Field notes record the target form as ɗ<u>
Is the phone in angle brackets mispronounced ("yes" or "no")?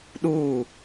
yes